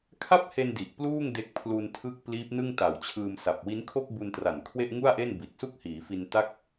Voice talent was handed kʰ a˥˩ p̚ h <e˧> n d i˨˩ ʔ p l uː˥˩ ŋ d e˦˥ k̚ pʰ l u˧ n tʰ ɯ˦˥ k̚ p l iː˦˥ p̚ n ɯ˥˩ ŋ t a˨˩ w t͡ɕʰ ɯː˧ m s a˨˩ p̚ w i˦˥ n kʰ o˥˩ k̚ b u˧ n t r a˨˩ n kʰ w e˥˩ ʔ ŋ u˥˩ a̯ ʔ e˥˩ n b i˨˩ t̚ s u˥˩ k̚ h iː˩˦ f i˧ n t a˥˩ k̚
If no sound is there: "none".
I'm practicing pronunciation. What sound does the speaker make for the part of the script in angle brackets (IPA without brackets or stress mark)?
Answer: e˧